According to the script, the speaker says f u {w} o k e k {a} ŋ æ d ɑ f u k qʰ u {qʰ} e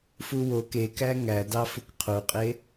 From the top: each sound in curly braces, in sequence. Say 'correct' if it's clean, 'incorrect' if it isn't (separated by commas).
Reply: correct, incorrect, incorrect